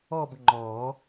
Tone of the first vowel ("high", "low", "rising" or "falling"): falling